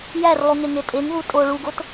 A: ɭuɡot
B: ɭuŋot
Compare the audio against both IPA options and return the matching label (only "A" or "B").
A